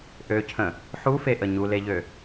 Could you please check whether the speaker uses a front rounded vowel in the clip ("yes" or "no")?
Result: yes